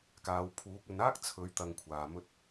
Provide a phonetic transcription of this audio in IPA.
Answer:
k aː˨˧ w pʰ uː˨˥ k̚ ɵ˨˧ n aː˥ k̚ t͡sʰ ɵ˨˥ ɥ t̪ ɐ˧ ŋ kʷʰ aː˨ m ɵ˧ t̚

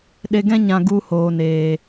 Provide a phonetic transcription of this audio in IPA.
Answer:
ɗ e˧ ɡ ɛ̃˦ ɲ ã˧ ɡ u˧ h oː˨ n eː˨

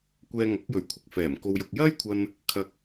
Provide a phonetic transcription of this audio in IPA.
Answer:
kʷ ɛː˧ ŋ ɐ˨˥ k̚ j ɵ˨˥ ɥ kʷʰ ɪ˨ k̚ f ɛː˨˩ m k o˧ w j ʊ˧ k̚ j ɐ˥ j kʷʰ ɐ˧ n | kʰ ɐ˧ k̚

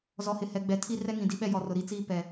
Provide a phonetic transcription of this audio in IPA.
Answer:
z ɔ˨ h ɪ˨ h ɛ˨ ɡ͡b ɛ˨ tʰ i˦ r ɛ˦ ŋ ĩ˨ d i˦ ɓ ɛ˦ j ɔ˨ r ʊ˨ ɾ i˦ t͡s iː˦ p ɛ˨

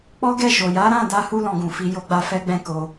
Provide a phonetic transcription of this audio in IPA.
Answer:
k͡p ɔ˦ ɡ ɛ˦˨ ʃ o˨ j a˨˦ ɾ ã˦˨ d a˧ h u˦ l ɔ̃˧ ɡ ũ˨ f i˨˦ j o˦ ɡ͡b a˦ f ɛ˦ ɡ͡b ɛ̃˦ k o˧

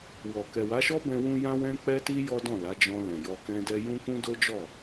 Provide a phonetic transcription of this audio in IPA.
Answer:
w ɔ˨ k ɛ˨ w a˨˦ ʃ ɔ˦ b ɛ̃˦ w ũ˦ j ã˦ w ɛ̃˦ k͡p ɛ˦ t i˦ j ɔ˦ d ɔ̃˦˨ l a˨˦ d͡ʒ ɔ̃˧ l ɛ̃˨ j ɔ˧ k ɛ̃˦ d ɛ˦ j ũ˦ k ũ˦ d o˦ d͡ʒ ɔ˦˨

